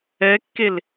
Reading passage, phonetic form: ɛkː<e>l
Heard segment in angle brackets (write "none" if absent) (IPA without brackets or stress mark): e